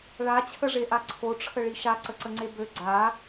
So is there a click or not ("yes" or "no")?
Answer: yes